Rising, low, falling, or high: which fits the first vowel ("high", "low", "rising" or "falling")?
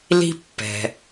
high